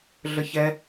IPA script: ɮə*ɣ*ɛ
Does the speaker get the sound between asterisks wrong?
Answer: yes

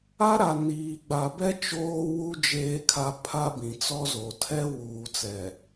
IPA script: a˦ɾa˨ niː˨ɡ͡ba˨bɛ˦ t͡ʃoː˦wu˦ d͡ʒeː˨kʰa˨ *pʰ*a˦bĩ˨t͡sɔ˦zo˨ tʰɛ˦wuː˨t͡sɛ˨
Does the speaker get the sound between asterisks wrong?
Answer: no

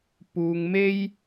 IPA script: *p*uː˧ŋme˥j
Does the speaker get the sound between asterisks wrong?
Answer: no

